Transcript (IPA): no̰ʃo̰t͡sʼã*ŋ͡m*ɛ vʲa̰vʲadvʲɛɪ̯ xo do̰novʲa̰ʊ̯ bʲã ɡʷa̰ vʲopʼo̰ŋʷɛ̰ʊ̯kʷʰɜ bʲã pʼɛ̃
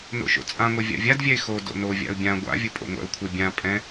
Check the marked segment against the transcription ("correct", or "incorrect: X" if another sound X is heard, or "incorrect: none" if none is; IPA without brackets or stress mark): incorrect: ŋʷ